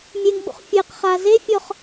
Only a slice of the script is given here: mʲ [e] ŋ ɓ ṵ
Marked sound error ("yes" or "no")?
no